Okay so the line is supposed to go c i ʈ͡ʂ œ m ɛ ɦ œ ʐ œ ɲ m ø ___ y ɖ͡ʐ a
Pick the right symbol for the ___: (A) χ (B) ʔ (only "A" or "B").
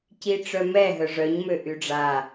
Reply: B